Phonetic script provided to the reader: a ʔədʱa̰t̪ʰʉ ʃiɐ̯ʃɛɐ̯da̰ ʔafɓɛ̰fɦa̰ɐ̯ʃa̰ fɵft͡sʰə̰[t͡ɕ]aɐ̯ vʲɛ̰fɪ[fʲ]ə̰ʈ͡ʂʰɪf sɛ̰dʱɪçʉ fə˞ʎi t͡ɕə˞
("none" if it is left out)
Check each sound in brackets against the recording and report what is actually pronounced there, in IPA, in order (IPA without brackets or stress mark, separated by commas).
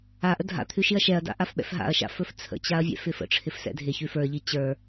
t͡ɕ, f